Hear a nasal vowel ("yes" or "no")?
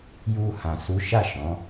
yes